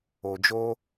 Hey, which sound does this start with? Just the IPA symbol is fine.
o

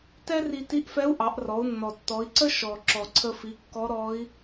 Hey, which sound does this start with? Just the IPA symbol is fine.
t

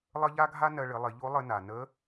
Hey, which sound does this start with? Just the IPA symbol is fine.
lˠ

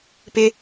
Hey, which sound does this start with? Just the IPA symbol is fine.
p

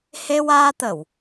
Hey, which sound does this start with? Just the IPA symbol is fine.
h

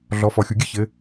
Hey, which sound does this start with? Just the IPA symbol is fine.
ɮ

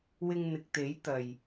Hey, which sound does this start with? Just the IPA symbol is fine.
w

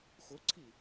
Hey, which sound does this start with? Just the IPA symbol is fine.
x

